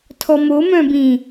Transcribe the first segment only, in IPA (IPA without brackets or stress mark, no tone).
tʰ